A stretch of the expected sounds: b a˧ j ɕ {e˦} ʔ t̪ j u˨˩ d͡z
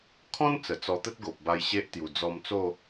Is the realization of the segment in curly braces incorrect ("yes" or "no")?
no